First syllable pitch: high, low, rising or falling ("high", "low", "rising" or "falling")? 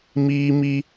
high